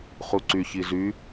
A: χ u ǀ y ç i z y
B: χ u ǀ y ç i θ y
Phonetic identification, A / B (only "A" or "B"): A